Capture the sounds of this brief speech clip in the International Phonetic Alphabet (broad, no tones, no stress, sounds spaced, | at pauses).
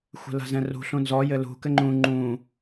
xʷ ɛ̤ l a̤ z ɛ̃ r ṳ ɬ ũ n z ɔ j ɘ l ṳ k ɘ ŋ͡ǃ ũ ŋ͡ǃ ũ